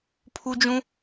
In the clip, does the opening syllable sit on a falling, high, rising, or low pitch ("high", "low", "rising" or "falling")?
high